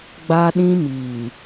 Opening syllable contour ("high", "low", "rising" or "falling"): high